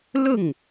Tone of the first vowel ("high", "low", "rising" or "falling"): falling